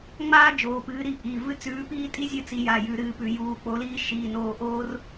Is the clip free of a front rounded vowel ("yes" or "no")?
yes